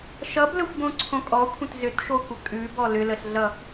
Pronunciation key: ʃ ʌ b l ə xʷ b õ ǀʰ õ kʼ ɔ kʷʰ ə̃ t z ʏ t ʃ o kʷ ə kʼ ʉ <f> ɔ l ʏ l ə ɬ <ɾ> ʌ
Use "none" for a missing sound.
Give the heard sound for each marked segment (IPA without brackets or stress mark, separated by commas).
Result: b, ɮ